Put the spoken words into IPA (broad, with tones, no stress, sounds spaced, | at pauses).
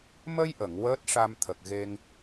m ə˧ j ʔ ə˨˩˨ ŋ w əː˦˥ t̚ ʂ a˧ m t̪ʰ ə˨˩ k̚ ɣ e˧ ŋ